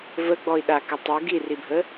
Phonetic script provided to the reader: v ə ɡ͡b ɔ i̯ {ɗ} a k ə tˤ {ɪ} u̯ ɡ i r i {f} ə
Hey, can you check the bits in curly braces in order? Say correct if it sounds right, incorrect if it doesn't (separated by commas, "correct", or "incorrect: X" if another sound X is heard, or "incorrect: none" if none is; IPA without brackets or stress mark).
correct, correct, incorrect: bʱ